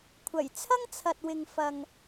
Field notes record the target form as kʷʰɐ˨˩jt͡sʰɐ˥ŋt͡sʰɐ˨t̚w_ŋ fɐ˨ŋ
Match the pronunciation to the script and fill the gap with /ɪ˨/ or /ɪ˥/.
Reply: ɪ˨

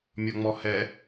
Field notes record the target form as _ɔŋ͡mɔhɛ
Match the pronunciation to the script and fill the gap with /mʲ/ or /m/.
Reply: mʲ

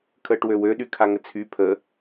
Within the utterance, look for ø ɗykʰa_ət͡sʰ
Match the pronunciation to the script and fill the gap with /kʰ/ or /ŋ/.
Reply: ŋ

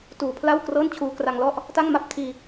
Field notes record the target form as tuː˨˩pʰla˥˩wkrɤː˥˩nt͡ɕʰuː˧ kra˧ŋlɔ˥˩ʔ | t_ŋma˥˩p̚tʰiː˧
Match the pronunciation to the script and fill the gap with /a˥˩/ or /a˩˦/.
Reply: a˥˩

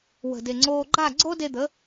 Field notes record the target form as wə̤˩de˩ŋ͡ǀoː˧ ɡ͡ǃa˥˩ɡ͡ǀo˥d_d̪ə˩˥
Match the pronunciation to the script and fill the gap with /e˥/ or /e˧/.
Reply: e˧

